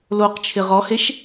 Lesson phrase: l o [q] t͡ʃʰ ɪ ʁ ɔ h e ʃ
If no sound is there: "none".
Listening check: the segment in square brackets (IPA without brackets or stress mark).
q